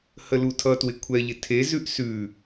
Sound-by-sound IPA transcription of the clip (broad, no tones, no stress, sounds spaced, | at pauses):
h ə l u tʰ ʌ t w ɪ kʷʰ ɛ ʎ ɪ tʰ e z ʉ ʔ s ʉ